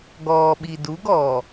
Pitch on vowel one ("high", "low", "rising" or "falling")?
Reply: low